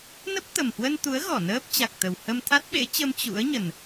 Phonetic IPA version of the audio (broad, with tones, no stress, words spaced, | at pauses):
nə˦˥p̚t̪ə˨˩mhwə˧nt̪u˨˦ə̯ ɣɔ˧˩nəː˦˥p̚ t͡ɕa˨˩k̚t̪ə˨˩w hə˧mt̪ʰa˦˥t̚ɓḛ˧˥t͡ɕə˧m t͡ɕṵ˧˥ə̯ ɲə˨˩n